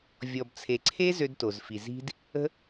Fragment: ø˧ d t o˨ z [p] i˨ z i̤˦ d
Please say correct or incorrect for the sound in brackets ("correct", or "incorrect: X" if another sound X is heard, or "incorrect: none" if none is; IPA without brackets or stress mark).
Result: incorrect: f